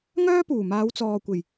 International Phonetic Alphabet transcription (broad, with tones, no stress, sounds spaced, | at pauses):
ŋ œː˥ p uː˨˩ m aː˨˧ w t͡s ɔː˨ kʷ e˨˩ j